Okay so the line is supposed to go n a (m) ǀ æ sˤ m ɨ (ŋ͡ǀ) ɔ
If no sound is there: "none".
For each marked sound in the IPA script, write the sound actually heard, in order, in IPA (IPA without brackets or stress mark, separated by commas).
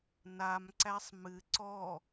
m, ǀ